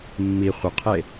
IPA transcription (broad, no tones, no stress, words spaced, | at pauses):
mːi χʷəqʰe